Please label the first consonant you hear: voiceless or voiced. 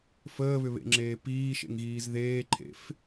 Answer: voiceless